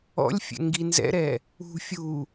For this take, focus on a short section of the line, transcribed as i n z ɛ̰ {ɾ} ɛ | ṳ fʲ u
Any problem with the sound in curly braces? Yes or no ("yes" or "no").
no